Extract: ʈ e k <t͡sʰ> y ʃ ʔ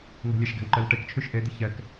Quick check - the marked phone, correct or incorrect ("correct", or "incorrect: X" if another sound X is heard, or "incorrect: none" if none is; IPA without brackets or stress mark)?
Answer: incorrect: t͡ʃʰ